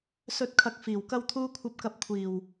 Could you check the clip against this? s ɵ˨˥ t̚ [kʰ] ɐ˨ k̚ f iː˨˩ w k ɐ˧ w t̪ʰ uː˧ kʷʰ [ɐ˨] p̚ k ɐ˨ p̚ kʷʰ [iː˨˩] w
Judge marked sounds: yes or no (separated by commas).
yes, yes, yes